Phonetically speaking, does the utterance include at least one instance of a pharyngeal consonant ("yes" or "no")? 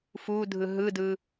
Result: no